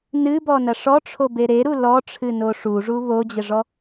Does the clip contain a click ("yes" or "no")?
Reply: no